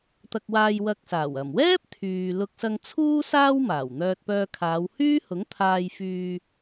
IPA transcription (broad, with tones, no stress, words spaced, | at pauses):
t̪ɐ˧k̚waː˧jwɐ˧k̚saː˨˩w ɐ˨˩mwɛː˥p̚ t̪ʰyː˨ lʊ˧k̚sɐ˧ŋt͡sʰuː˥ saː˥wmaː˨˩w n̪œː˧t̚pœː˧kʰaː˨˧w hyː˥hʊ˨˥ŋt̪ʰaː˧j fyː˧